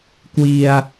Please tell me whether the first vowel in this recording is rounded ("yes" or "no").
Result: no